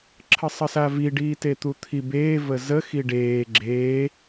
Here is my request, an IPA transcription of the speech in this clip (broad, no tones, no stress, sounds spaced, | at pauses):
ǁʰ ə sˤ ə s a v i ɖ iː t e t̪ u t̪ʰ i b eː v ə z ə x i ɖ eː ɡ͡ǁ eː